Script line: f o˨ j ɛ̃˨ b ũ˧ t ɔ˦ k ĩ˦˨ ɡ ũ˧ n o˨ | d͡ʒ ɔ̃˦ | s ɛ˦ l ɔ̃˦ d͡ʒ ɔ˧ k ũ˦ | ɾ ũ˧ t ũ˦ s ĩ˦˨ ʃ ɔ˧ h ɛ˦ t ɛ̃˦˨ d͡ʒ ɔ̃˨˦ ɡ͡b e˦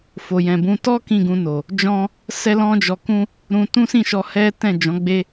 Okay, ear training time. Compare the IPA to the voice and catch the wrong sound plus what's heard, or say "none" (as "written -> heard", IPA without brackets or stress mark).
none